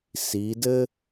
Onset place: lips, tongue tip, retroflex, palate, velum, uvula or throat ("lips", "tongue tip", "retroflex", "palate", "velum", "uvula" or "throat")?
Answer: tongue tip